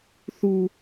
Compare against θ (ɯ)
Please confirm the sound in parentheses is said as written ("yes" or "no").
no